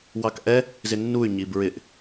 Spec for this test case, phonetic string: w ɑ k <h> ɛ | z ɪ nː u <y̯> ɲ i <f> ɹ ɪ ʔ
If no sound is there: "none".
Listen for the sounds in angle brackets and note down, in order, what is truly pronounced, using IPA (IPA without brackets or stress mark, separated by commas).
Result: ʔ, y̯, b